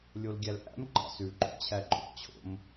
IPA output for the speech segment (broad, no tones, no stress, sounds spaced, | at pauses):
lʲ o l ɡʲ æ l ʔ æ̰ m ŋ͡ǃ ɑ̰ s ʉ ǃʼ o̰ t͡ɕʰ æ ǃʼ o̰ t͡ɕʰ o̰ m